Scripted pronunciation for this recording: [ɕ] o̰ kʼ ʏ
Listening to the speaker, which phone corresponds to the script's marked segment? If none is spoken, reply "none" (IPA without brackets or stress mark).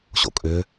ɕ